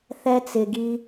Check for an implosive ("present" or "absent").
absent